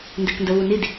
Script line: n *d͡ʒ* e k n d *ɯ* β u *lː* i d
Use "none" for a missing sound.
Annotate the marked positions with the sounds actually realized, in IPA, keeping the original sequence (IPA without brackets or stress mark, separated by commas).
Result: d, ə, n